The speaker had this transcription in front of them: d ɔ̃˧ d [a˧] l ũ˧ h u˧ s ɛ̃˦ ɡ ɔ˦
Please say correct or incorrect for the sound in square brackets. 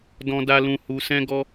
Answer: correct